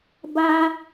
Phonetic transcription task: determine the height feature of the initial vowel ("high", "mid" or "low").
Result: low